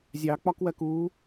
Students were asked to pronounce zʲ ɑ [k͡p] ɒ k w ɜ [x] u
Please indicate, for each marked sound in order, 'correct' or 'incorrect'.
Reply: correct, incorrect: k

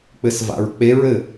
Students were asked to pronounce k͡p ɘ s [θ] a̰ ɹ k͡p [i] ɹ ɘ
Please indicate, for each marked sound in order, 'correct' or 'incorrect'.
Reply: incorrect: v, incorrect: e

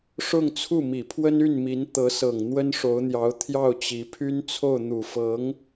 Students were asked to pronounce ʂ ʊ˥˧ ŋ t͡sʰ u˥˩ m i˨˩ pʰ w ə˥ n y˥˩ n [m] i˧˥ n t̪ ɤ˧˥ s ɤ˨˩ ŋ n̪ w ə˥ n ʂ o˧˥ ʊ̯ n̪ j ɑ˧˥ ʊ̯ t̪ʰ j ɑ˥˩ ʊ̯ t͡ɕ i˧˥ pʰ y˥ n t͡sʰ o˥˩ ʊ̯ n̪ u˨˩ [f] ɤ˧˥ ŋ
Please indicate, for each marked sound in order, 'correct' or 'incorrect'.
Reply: correct, correct

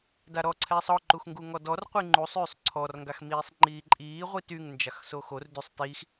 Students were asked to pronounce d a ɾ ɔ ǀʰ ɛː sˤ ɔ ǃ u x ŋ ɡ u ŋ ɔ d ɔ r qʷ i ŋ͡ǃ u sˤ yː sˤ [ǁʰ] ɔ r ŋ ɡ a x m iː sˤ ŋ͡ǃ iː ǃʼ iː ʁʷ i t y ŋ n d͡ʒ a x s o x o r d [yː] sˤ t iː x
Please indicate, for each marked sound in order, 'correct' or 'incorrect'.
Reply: incorrect: ǀʰ, incorrect: y

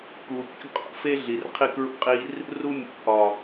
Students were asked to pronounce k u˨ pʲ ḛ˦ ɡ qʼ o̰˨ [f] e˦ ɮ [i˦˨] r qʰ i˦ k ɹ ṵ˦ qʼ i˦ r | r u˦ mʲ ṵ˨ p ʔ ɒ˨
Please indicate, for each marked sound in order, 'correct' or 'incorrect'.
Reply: correct, incorrect: i˨

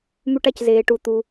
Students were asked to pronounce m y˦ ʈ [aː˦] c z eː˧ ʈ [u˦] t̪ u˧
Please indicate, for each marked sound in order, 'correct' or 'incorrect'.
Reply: incorrect: a˦, incorrect: u˧

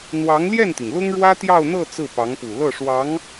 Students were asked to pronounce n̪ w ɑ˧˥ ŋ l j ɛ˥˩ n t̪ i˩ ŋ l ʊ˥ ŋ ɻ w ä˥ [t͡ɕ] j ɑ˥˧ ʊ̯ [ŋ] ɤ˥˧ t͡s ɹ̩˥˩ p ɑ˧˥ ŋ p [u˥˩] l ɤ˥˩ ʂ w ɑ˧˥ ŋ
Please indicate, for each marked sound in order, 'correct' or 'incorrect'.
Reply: incorrect: t̪, incorrect: n̪, incorrect: u˨˩

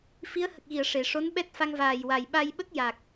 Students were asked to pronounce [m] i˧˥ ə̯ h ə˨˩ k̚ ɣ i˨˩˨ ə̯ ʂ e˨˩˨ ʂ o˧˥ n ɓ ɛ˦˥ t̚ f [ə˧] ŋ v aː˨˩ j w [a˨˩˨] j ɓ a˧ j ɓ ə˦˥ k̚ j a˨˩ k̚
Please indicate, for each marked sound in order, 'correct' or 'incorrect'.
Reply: incorrect: f, incorrect: a˧, incorrect: a˨˩

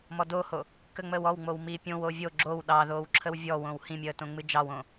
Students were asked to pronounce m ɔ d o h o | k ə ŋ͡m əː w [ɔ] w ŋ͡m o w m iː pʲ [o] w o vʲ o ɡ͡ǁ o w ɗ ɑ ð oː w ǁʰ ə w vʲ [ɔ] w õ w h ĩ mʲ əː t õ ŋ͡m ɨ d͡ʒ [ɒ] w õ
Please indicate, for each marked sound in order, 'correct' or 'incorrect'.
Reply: correct, incorrect: õ, correct, incorrect: ɑ

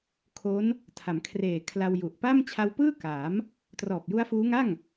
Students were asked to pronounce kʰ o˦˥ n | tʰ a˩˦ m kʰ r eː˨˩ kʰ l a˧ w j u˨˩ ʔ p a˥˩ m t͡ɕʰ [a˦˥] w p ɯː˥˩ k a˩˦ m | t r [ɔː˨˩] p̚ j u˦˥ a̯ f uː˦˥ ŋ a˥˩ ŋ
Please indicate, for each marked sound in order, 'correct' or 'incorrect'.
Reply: incorrect: a˧, correct

